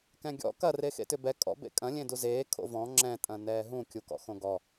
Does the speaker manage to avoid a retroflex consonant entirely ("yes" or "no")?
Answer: yes